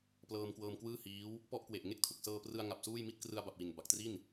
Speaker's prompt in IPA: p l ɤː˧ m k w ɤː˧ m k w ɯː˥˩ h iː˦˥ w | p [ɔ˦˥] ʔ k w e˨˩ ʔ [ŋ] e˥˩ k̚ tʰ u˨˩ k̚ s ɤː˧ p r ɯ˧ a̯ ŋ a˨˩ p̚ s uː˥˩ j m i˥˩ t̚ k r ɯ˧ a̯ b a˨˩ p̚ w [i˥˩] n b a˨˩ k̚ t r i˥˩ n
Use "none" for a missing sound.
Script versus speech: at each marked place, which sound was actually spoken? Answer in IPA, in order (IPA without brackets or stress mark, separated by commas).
ɔ˥˩, ŋ, i˨˩